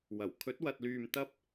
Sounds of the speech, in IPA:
wɐ˨˩w kʰɵ˨˥t̚wɐ˨t̚lyː˨m t̪ɐ˥p̚

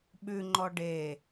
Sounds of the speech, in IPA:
ɓʉŋ͡ǃɔ ɖe

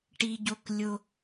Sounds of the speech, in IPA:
ʈi˦ ɟo˦klʲo˦

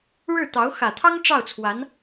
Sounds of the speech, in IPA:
ɻɻ̩˥˩ t̪ɑ˧˥ʊ̯ xä˨˩t̪ʰɑ˥ŋ ʈ͡ʂɑ˥˩ʊ̯t͡sʰwa˧˥n

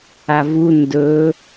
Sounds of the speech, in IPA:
avu ndɵ

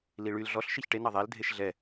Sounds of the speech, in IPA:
liɭyl ɮɔɬ ʃiçʈe nɑðˤæl dʱeʃɮɛ

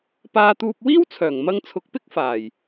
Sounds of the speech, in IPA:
paː˧t̪uː˧p̚ wiː˥wt͡sʰœː˨˩ŋmɐ˧ŋt͡sʰʊ˨˥k̚ pɪ˥k̚faː˨˩j

